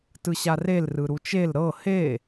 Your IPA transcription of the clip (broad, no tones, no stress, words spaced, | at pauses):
tɯɕarel rɯɾut͡ʃel ɾɤ he